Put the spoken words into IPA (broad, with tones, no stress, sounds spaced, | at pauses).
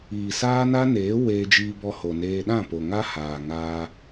iː˨ s aː˦ n a˦ n eː˨˦ w e˧ d͡ʒ iː˧ b ɔ˧ h o˨ n eː˧ ɗ ã˦˨ p o˨ ŋ a˦ h aː˨ ŋ aː˧